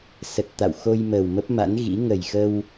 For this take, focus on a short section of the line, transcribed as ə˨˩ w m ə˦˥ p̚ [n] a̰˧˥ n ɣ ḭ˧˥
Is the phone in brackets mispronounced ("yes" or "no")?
yes